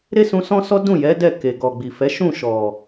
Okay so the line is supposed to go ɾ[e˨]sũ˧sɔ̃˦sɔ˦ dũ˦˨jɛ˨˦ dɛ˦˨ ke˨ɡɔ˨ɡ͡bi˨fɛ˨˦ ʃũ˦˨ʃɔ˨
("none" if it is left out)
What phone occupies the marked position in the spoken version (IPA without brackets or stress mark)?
e˦